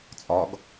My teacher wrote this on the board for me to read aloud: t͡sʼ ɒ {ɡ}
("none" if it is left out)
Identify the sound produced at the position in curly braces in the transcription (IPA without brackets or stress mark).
ɡ